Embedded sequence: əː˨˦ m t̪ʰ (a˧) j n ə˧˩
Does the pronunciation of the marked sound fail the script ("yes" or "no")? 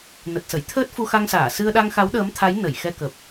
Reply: yes